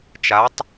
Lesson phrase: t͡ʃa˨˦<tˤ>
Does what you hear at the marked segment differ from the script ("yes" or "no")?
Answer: no